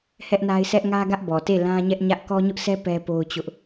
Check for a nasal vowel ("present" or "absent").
present